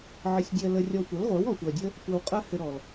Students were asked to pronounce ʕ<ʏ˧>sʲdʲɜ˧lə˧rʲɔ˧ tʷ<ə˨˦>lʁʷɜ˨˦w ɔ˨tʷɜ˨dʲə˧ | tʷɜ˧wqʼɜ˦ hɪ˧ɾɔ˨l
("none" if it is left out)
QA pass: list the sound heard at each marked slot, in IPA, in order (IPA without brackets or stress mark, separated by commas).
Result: ɪ˧, ə˨˦